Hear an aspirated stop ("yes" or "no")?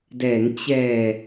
no